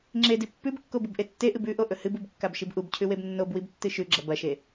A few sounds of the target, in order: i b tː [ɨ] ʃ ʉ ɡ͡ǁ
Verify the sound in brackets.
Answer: correct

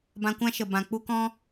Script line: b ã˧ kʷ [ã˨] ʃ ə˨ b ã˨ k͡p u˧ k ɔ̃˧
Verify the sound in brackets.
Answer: incorrect: ã˦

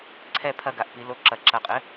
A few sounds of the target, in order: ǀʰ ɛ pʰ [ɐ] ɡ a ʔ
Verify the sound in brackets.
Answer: correct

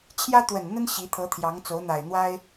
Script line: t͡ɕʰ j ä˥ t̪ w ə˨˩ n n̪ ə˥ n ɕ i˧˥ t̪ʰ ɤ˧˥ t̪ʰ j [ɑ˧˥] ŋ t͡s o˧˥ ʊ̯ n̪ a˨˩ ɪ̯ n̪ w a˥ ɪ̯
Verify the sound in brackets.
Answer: correct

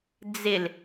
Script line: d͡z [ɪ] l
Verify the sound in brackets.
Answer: correct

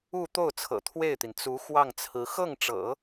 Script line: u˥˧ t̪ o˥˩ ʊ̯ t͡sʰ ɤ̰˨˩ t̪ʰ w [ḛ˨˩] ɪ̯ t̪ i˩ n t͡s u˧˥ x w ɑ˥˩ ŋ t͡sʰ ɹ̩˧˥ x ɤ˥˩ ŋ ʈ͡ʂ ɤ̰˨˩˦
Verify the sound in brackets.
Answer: incorrect: e˥˩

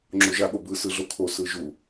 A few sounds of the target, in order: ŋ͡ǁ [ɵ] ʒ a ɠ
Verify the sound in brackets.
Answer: incorrect: o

